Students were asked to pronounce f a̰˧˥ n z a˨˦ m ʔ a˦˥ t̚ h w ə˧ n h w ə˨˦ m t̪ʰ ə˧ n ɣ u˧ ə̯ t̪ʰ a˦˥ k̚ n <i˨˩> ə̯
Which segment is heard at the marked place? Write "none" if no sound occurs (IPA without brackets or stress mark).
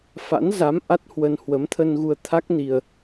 i˧